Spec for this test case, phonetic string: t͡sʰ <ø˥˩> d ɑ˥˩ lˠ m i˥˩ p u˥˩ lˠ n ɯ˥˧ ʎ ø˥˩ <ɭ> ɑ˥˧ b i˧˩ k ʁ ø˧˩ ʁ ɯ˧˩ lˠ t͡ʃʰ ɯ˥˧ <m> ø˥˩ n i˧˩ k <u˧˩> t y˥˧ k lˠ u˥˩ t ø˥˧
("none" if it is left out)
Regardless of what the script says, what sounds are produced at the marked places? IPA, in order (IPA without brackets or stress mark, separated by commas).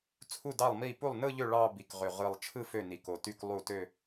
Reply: u˥˩, ɭ, f, o˧˩